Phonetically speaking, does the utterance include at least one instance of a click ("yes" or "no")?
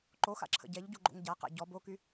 yes